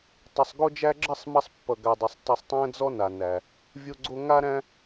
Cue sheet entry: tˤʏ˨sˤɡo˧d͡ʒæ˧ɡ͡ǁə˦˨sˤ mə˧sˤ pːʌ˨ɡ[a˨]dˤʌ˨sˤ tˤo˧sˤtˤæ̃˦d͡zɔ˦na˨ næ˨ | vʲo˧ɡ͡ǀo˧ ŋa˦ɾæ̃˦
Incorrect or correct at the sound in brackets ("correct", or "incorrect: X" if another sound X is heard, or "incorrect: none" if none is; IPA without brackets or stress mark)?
correct